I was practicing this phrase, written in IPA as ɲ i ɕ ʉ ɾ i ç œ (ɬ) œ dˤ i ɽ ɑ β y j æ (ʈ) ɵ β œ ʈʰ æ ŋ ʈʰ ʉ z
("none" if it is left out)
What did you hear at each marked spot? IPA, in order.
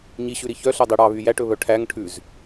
ɬ, ʈ

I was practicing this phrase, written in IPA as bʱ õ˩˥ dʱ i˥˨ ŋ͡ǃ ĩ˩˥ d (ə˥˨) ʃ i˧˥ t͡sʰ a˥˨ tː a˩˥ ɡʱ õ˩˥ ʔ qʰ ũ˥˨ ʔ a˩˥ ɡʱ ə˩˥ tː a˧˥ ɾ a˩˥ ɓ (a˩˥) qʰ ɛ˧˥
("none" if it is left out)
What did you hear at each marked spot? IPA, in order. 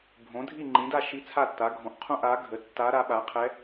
a˥˨, a˩˥

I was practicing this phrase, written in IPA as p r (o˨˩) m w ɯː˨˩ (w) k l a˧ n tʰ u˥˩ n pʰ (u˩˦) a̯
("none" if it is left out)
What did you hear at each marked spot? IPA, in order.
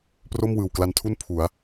o˥˩, w, u˩˦

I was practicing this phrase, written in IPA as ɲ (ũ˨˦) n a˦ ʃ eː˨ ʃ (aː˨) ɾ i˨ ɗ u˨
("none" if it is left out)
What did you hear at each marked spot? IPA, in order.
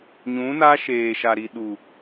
ũ˨˦, a˨

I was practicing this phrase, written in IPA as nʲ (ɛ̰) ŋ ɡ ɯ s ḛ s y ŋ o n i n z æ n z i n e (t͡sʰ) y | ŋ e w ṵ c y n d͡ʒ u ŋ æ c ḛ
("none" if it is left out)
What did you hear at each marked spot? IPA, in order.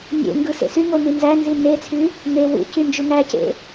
ḛ, t͡sʰ

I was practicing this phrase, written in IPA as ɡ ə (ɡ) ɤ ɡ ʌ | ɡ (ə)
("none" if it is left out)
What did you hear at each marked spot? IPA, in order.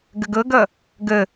ɡ, ə

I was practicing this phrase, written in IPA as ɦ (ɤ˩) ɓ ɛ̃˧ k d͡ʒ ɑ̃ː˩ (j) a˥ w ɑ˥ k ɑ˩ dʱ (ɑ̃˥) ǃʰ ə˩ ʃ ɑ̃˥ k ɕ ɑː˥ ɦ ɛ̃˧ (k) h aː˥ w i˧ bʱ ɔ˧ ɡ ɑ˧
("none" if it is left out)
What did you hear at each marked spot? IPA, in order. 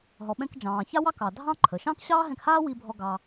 ɔ˩, ç, ɑ̃˥, k

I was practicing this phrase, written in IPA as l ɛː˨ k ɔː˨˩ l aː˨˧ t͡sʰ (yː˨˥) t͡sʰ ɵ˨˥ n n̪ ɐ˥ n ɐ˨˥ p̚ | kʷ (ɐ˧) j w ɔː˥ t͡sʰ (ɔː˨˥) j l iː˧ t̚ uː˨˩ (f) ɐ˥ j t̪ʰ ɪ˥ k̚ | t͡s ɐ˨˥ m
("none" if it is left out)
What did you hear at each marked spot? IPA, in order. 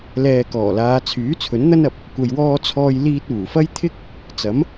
yː˨˥, ɐ˧, ɔː˥, f

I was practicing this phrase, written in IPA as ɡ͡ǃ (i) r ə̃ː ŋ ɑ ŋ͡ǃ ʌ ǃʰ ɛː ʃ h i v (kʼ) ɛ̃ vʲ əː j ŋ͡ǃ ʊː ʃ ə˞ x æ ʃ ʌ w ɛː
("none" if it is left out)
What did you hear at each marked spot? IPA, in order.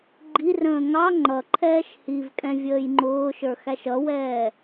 i, kʼ

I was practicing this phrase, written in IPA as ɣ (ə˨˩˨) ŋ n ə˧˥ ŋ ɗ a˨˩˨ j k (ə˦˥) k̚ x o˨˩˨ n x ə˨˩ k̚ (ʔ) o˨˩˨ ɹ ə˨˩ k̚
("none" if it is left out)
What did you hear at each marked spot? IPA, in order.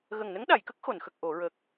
ə˨˩, ə˦˥, ʔ

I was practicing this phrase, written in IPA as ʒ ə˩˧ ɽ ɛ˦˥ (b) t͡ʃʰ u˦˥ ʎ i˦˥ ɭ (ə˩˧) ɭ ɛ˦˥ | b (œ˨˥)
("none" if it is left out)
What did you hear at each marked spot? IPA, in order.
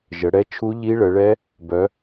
none, ə˩˧, œ˨˥

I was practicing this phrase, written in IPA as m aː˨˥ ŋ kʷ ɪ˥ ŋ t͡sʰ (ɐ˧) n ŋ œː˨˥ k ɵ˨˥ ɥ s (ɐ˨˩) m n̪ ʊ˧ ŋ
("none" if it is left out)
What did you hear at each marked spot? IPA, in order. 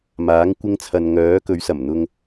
ɐ˧, ɐ˨˩

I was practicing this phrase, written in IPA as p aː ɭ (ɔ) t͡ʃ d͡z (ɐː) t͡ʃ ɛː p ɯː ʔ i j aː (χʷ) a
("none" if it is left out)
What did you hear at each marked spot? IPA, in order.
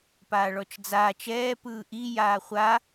ɔ, aː, χʷ

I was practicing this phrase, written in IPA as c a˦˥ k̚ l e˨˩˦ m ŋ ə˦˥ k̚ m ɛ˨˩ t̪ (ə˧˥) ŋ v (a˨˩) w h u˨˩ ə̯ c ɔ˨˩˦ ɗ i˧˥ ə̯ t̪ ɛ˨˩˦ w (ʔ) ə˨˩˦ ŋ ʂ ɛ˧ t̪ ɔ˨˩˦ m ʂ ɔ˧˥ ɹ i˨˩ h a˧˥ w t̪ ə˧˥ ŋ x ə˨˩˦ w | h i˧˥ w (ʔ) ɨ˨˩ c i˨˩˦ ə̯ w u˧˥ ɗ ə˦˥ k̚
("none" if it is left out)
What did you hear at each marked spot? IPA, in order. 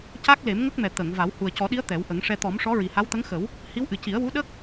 ə˨˩˨, a˨˩˦, ʔ, ʔ

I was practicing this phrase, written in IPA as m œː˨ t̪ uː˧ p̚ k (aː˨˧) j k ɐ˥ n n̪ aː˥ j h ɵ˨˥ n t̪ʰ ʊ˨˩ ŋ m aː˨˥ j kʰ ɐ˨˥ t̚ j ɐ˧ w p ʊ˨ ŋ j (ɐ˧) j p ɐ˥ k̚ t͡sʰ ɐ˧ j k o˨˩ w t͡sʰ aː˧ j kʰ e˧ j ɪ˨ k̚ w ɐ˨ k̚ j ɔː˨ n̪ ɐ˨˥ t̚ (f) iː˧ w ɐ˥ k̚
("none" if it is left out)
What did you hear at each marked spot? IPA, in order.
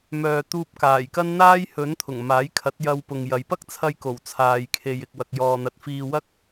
aː˨˩, ɐ˨, f

